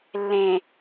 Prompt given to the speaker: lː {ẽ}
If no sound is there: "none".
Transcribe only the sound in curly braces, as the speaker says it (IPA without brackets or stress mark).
ẽ